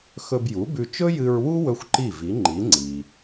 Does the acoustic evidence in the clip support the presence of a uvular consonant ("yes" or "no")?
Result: no